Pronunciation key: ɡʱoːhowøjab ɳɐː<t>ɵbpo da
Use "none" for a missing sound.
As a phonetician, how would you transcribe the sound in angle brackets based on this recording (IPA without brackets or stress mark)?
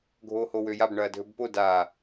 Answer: dʱ